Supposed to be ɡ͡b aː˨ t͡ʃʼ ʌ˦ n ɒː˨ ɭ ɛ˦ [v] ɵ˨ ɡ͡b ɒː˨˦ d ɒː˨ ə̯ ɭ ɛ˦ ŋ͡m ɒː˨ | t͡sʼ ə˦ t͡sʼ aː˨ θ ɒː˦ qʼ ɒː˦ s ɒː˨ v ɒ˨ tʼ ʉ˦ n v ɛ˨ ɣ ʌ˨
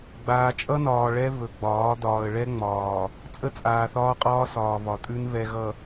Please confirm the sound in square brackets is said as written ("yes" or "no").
yes